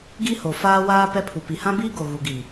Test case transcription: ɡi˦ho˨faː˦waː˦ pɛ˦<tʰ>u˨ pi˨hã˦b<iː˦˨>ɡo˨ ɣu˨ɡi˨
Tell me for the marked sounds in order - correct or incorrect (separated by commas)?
incorrect, incorrect